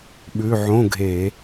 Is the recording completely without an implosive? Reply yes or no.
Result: no